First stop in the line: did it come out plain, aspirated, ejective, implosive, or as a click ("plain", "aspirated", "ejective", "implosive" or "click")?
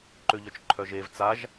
click